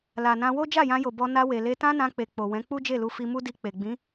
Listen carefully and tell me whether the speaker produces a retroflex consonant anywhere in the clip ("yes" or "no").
no